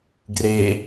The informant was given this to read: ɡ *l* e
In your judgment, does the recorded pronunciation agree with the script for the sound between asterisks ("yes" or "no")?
no